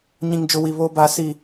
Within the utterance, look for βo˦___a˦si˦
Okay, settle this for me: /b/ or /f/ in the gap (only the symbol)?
b